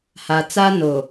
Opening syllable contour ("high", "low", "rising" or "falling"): low